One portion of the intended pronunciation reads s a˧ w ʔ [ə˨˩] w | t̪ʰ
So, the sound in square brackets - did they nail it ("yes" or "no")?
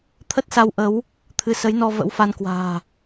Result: no